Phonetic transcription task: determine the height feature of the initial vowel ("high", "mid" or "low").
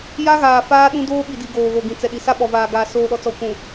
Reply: low